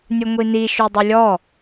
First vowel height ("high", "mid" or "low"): high